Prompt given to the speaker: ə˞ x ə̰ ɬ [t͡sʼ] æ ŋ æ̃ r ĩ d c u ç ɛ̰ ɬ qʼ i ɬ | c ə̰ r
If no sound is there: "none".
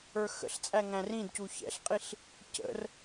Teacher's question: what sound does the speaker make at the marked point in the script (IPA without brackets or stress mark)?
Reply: t͡sʼ